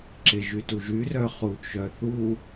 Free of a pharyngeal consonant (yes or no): yes